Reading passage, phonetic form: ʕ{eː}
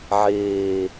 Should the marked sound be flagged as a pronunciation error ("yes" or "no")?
no